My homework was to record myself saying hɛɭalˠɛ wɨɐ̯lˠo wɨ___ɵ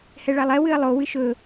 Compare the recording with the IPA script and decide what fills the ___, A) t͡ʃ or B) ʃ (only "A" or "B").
B